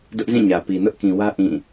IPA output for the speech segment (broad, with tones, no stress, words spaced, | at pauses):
dʊ˦ʔzĩ˦˨ɲä˨ pi˨nʊ˦ʔkĩ˨wä˦ ʔĩ˦˨